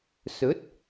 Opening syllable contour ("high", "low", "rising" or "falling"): rising